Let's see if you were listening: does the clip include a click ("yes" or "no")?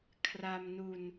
no